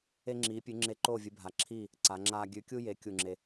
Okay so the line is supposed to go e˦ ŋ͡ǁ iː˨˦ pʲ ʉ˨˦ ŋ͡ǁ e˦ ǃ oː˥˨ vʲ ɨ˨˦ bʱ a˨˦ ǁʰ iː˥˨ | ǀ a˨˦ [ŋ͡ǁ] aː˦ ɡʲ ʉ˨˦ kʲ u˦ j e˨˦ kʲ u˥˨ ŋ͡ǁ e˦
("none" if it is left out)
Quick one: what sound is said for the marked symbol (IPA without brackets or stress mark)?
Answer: ŋ͡ǁ